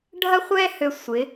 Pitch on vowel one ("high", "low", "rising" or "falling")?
high